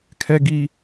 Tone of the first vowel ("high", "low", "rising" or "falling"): high